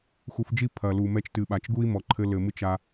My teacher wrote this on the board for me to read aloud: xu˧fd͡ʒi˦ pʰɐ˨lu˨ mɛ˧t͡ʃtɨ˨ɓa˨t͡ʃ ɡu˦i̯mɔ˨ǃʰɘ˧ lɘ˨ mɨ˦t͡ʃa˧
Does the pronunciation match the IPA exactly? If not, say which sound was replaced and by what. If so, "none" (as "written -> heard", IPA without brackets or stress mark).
none